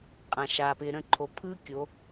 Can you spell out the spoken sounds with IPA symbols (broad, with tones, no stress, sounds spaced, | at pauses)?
qʼ ã˨ ʃ aː˨ p ɪː˨ ɾ ə̃˦˨ ǃʰ o˨ pʰ ɯː˦ kʲ o˨˦